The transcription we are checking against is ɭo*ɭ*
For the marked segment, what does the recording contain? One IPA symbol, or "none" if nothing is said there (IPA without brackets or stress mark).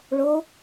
none